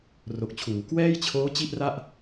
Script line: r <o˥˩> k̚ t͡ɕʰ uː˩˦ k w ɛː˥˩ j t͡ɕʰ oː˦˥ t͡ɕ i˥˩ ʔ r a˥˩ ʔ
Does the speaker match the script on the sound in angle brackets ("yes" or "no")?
no